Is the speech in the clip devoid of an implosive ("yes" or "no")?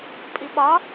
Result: no